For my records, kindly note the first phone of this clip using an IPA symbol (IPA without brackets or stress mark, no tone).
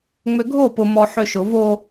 ŋ͡m